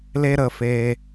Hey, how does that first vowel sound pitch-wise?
high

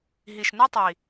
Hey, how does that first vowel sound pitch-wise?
low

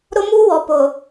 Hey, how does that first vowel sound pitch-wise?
high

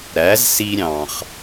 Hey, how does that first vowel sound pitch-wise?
rising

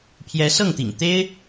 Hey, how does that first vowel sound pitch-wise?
rising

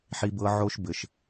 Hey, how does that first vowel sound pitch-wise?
high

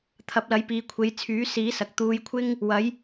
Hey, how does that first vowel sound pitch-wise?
rising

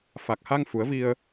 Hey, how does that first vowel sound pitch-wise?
low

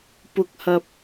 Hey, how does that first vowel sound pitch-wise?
high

